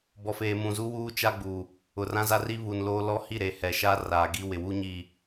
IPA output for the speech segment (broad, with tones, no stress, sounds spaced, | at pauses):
b ɔ˨ f eː˨ m ũ˨ z u˦ w uː˦ t͡ʃ a˦ ɡ͡b u˨ | ʊ˨ r ã˦ z a˦ r i˦ β u˨ n l oː˦ l ɔ˦ h i˦˨ ɾ e˨ h ɛ˨ ʃ a˦ r aː˨ ɡ i˦ w ɪ˨ w u˦ ɲ i˨